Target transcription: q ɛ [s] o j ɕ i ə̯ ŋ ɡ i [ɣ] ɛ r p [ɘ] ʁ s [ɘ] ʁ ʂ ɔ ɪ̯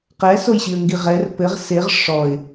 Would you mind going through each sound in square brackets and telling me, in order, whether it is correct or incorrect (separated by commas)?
correct, incorrect, correct, incorrect